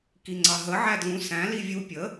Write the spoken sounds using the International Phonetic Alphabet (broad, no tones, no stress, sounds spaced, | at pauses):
k i ŋ͡ǀ ɑ ɦ ə ʕ æ d l ũ s æ̃ l i vʲ u pʲ ə